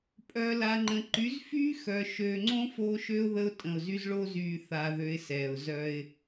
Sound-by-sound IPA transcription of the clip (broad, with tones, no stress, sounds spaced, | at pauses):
pʼ œ˨ l a˨ ŋ͡ǃ ə̃˨ ǃ y˨˦ z f y˦ x œ˨ ʃ ø˨ ŋ͡ǀ õ˦ f o˦ ʃ ø˦ ʊ̯ ð ə˦ ʊ̯ tʼ ə̃˨ ʊ̯ z y˦ z ɭ o˦ z yː˨ θ a˨ ð ø˨ ɪ̯ s ɛː˨ ʊ̯ z œ˦ ɪ̯